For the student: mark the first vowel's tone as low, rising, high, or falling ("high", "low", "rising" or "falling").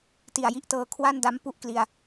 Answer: low